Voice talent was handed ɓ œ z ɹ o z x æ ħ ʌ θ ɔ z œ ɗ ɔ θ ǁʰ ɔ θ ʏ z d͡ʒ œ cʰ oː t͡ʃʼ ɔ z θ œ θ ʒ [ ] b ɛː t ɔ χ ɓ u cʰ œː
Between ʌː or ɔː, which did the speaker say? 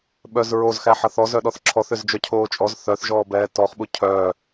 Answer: ɔː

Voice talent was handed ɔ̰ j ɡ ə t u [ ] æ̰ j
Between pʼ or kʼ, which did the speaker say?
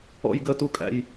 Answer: kʼ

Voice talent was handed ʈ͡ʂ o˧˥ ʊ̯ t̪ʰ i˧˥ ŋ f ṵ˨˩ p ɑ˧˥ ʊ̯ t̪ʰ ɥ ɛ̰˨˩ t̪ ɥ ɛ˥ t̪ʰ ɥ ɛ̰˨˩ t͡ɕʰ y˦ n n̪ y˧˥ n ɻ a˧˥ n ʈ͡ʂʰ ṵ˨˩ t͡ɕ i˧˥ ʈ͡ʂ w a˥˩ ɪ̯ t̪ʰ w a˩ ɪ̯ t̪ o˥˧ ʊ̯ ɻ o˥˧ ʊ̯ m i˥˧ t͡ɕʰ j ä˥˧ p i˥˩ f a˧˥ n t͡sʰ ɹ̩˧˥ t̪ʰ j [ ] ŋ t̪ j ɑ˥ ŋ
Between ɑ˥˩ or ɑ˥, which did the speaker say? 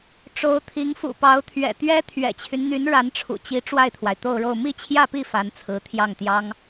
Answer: ɑ˥˩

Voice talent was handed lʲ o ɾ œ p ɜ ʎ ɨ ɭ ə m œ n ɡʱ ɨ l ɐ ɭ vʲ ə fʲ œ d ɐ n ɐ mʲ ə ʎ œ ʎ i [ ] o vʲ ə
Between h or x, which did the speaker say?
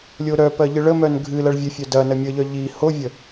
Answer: h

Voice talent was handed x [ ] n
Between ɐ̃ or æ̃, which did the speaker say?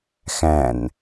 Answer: æ̃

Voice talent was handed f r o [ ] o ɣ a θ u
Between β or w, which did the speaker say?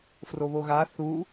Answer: β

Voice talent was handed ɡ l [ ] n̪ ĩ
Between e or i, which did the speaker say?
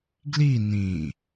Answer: i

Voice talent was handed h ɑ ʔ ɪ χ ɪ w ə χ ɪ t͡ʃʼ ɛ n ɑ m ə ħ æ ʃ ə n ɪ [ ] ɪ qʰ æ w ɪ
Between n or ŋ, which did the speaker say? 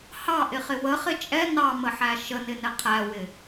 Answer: n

